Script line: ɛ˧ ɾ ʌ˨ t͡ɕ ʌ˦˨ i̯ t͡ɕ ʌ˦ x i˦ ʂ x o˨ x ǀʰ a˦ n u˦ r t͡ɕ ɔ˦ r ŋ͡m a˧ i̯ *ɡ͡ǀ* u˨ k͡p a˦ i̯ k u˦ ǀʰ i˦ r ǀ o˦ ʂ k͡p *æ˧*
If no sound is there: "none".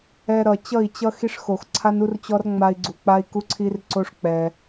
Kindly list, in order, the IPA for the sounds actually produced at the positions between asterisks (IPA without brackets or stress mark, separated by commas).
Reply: ɡ͡ǀ, ɛ˧